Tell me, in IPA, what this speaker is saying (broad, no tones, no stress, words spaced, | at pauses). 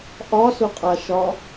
ʔɒsʊqʼaʃɒ